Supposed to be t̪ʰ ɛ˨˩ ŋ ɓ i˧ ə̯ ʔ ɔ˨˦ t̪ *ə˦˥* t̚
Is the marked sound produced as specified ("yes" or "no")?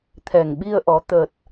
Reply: no